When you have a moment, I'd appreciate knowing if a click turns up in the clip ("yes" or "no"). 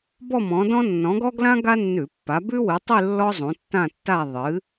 no